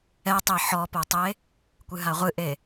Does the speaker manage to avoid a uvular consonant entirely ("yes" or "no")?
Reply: no